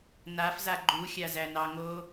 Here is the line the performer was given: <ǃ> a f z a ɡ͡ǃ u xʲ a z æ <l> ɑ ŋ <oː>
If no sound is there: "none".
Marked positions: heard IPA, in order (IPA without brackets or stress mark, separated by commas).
n, n, oː